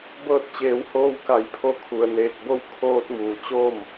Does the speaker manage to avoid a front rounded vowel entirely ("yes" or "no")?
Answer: yes